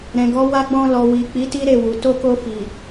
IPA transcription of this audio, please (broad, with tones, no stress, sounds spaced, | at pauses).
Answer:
ɾ ɛ̃˨ ɡ ɔ˨˦ w a˧ ɡ͡b ɔ̃˧ l ɔ˨ w i˨ k͡p i˨˦ t i˦ ɾ e˦˨ w u˨ t o˧ k o˧ f i˨